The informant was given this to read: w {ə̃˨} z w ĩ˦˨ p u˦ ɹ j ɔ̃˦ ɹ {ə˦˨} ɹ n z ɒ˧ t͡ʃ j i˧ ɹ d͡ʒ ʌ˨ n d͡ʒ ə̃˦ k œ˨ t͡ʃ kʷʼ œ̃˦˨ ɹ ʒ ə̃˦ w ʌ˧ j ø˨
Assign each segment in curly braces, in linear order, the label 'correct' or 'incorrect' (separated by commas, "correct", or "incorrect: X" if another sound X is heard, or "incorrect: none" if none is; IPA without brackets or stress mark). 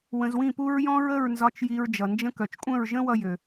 incorrect: ə̃˧, correct